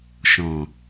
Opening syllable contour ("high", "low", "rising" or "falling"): low